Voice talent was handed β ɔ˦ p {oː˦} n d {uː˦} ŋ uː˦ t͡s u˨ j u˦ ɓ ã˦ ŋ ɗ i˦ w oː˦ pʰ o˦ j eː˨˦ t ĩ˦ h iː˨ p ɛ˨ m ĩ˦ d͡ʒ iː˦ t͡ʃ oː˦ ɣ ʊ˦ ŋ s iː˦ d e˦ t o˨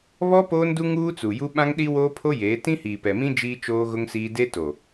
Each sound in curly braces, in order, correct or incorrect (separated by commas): correct, incorrect